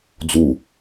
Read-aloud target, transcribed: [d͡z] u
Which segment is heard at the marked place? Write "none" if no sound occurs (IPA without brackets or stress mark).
d͡z